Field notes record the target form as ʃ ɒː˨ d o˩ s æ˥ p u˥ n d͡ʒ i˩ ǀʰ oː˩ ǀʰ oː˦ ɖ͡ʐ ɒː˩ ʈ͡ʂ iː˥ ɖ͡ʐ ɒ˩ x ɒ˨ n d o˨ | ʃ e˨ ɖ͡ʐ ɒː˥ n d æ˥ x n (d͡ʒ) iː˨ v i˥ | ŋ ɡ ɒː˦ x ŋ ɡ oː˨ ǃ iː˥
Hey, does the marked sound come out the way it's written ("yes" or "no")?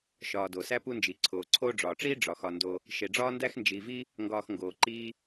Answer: yes